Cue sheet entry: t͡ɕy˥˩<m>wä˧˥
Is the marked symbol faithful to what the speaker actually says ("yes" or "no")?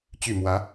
yes